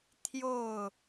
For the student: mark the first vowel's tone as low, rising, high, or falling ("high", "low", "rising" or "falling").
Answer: falling